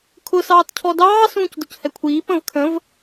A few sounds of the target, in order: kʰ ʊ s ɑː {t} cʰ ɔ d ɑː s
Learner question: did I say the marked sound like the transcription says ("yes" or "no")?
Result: yes